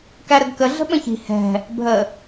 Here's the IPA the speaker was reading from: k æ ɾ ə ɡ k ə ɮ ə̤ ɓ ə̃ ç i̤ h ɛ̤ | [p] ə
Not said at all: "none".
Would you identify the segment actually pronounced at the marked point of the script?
bʱ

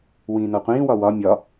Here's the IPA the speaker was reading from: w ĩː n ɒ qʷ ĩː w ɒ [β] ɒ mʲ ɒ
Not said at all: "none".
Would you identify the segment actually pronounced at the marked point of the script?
w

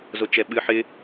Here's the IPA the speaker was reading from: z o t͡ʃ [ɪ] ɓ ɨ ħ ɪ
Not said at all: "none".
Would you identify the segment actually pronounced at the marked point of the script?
ɛ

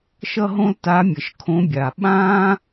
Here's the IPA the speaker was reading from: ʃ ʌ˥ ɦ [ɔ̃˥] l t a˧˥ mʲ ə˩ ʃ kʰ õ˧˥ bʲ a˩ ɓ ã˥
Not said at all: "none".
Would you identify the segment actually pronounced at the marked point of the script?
õ˥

